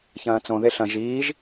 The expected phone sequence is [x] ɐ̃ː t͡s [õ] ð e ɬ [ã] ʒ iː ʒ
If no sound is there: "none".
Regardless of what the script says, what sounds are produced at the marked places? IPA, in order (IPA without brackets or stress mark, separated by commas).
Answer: ç, õ, ɐ̃